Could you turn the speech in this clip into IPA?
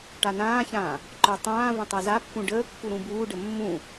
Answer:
ʈanãːçãː | ǃœtˤãːvə̃ tˤazapːũ ɖəːkːu ɾũbuːɖə mːũ

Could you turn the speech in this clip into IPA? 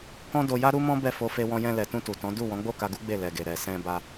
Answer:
kɔ̃˦ do˧ja˦ɾu˦mɔ̃˦ bɛ˦˨fo˧ fe˧wɔ̃˧ jɛ̃˧lɛ˨tũ˧ tu˨tɔ̃˨˦ du˦˨wɔ̃˨˦ɡ͡bo˦˨ka˧ ɡu˦ ɡ͡be˦˨lɛ˨ɡe˨ ɾɛ˨sɛ̃˧ ba˧

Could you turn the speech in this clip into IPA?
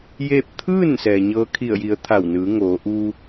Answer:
jeː˥˨p̚ t̪ʰɯː˥˨n sɛː˩ɲɤː˧˥kʰi˧˩ə̯ji˩˧ə̯ t̪ʰa˧˩wnɯː˩˧ŋoː˩˧ ʔu˧

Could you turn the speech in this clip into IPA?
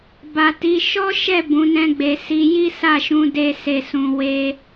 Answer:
ba˨ ti˨˦ ʃɔ˦ʃɛ˦˨ bũ˨˦nɛ̃˦ɡ͡be˧ si˧ ji˦sa˦˨ʃũ˧ de˦se˦˨ sũ˧we˦

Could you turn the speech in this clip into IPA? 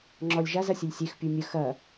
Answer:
ŋ͡ǁɔlʲʒaz ɐsʲəlʲsʲex pʲumʲə xɐ

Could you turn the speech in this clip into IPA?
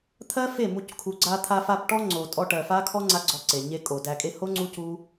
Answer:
t̪ʰɜ˦fe˦˨mu˧c kʰu˨ɡ͡ǀa˧t̪ʰa˧fa˧p ʈɔ˦ŋ͡ǀo˨tʼɔ˧ʈɜ˨ fa˦kʰɔ˦ ŋ͡ǀa˦ɡ͡ǀɔ˧ǀe˨ɲe˦ kʼo˨dæ˧kʼe˦ ho˦ ŋ͡ǀu˦cu˦

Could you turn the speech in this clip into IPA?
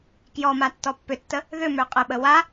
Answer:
kjɔma tːɔpːʏtːə | ðʏmø qʼəɓə wa

